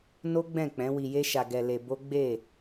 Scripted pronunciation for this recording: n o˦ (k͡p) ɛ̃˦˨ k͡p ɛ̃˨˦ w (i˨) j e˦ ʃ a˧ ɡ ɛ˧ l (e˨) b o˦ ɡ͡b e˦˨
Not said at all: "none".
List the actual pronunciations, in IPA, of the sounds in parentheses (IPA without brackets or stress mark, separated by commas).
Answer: ɡ͡b, i˧, e˧